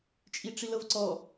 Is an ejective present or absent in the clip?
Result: present